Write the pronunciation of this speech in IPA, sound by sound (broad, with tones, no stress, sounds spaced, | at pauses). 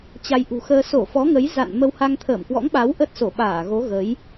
t͡ɕ a˧ j ʔ ṳ˨˩ x əː˧ s o˧˩ f ɔ˨˦ ŋ ə˨˦ j z a̰˧˨ n m ə˧ w h a˧ ŋ t̪ʰ əː˧˩ m k w ɔ̰˧˥ ŋ ɓ a˨˦ w ʔ ə˦˥ t̚ s o˧˩ ɓ aː˧˩ ɣ o˨˦ ɣ ə˨˦ j